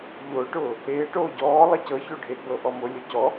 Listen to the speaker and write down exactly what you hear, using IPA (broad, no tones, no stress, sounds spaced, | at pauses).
ʎ ʊː ʈ ʊː | eː ʈ oː ɟ ɔː lˠ e c ɤ ç o ɖʱ e ɡ͡b ɤ ʔ ɔ m ʊ lʲ ʊ c ɔ